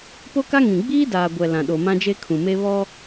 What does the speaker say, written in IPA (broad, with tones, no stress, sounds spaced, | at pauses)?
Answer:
p o˦ k a˦ ŋ ĩ˨ ɡ͡b iː˦ d aː˨ ɡʷ ɛ˨ l ã˨ ɗ o˨ m ã˦ d͡ʒ e˦ kʰ ũ˨ m e˦ β ɔ˦